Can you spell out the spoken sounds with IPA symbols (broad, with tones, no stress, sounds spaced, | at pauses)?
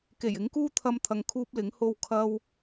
k e˨˩ j ɪ˨˥ ŋ k uː˥ t̪ʰ ɐ˧ m t̪ʰ ɐ˨ ŋ kʰ uː˥ p̚ l ɪ˨˥ ŋ h o˥ w kʰ ɐ˥ w